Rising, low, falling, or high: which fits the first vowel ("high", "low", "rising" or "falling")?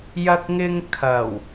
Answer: high